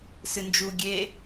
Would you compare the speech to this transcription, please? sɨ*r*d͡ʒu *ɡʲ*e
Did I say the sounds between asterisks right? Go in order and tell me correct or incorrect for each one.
incorrect: n, correct

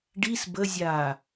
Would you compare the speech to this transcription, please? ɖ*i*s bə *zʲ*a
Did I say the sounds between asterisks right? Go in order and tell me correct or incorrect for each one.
correct, correct

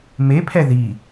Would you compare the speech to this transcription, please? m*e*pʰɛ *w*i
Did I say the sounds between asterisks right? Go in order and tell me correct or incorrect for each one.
correct, incorrect: ð

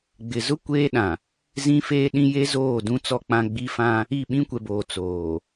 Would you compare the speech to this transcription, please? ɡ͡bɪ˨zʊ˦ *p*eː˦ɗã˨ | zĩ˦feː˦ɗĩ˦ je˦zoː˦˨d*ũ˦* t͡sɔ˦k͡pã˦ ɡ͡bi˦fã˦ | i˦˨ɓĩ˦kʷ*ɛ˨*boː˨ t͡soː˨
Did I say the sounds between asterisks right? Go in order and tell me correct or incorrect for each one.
incorrect: kʷ, correct, correct

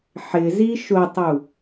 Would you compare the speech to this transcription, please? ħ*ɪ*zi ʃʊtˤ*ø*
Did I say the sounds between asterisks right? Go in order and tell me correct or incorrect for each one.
correct, incorrect: u

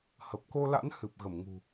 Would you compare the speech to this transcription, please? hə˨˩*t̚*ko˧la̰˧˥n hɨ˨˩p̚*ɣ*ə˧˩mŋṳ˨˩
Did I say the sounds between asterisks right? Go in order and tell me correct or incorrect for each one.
incorrect: p̚, correct

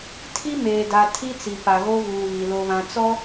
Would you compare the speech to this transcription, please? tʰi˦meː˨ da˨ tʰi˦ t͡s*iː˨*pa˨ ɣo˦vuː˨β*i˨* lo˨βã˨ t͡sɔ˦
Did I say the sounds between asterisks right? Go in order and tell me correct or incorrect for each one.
incorrect: i˨, correct

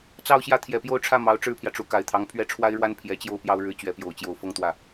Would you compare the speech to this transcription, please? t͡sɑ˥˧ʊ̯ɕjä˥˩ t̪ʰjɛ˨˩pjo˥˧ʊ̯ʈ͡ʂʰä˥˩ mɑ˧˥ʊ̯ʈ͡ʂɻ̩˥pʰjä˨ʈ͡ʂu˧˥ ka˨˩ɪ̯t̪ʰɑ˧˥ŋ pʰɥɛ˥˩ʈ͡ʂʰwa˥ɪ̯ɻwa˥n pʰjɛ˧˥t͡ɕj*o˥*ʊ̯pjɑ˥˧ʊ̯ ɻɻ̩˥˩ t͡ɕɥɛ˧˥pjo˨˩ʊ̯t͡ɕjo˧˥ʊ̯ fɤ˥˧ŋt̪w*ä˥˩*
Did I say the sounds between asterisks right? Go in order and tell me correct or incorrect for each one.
incorrect: o˥˧, correct

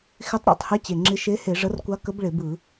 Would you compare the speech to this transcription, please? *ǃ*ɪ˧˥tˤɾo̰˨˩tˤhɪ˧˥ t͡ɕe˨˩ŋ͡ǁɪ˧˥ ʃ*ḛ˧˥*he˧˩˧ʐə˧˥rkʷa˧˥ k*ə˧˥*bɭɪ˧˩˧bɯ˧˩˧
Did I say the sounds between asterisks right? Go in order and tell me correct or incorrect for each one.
incorrect: x, incorrect: e˧˥, correct

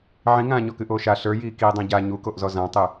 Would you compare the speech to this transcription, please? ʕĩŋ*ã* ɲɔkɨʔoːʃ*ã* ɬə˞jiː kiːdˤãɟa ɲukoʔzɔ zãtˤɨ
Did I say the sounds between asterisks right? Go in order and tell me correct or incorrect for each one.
incorrect: ãː, incorrect: a

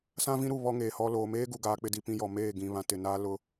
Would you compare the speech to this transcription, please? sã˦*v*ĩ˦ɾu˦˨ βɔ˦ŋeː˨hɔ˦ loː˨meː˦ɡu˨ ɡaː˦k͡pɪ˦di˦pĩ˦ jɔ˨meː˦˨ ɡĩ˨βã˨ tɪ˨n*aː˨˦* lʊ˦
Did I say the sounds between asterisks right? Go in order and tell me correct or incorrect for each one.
correct, incorrect: aː˦

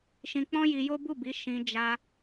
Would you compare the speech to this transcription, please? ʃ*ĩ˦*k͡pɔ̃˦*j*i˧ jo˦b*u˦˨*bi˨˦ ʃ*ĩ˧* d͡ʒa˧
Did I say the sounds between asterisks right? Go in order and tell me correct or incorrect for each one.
incorrect: ĩ˧, correct, correct, correct

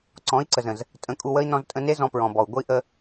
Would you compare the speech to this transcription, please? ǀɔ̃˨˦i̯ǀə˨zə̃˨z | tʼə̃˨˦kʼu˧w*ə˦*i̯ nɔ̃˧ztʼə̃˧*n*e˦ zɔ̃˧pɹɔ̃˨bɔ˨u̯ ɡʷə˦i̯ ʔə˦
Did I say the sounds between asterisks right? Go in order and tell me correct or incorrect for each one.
correct, correct

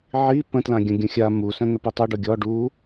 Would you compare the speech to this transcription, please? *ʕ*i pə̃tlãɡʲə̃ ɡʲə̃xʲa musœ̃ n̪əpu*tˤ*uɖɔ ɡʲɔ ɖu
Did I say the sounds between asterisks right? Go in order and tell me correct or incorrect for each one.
correct, correct

